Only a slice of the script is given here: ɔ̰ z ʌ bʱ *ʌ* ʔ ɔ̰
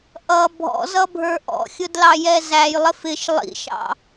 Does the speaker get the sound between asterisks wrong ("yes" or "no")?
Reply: yes